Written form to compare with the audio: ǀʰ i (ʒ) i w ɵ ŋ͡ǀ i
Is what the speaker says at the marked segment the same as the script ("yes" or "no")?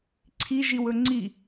yes